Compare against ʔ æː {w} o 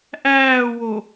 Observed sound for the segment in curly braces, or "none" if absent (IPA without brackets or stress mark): w